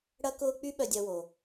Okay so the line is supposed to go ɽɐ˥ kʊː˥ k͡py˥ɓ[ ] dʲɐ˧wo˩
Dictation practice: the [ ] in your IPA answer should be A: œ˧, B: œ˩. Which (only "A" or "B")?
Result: A